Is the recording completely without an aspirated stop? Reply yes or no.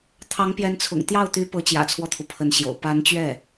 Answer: no